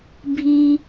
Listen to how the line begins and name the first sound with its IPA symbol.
bʱ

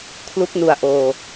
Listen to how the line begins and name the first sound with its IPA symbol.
kʰ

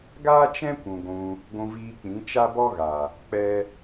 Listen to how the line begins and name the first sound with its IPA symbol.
ɡ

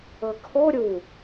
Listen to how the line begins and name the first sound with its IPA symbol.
ɤ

